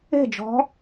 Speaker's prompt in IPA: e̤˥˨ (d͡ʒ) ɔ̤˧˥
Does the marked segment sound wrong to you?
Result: no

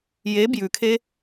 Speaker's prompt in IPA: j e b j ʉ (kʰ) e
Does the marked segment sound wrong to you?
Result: no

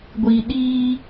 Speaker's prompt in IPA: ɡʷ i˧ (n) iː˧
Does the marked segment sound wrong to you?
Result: yes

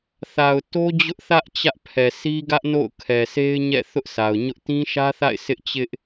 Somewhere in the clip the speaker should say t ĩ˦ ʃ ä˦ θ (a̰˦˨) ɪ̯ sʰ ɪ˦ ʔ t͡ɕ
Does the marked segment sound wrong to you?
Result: no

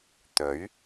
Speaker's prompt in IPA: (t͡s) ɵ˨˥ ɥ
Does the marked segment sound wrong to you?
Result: yes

